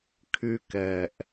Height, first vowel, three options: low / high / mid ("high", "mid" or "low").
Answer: high